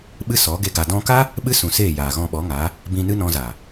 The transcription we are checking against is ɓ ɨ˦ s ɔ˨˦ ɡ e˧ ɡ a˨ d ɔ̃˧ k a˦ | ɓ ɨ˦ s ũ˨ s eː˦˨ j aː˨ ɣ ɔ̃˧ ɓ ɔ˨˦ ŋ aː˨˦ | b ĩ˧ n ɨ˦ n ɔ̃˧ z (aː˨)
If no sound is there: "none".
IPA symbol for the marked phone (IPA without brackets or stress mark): aː˨